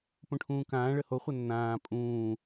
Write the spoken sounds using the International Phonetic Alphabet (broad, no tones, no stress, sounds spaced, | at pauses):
p õ ʈʰ ũː k ãː ɭ ə h o χʷ ɐ nː ãː pʼ ũː